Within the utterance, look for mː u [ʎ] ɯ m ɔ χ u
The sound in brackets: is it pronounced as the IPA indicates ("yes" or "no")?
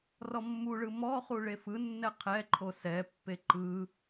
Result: no